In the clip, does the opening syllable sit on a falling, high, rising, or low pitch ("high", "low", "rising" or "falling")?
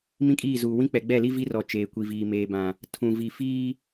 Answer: high